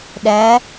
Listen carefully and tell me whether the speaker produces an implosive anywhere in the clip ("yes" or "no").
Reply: yes